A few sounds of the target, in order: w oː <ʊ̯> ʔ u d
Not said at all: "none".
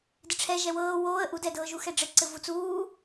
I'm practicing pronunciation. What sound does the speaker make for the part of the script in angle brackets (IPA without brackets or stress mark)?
ə̯